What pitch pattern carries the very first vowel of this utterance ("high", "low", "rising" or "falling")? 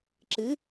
rising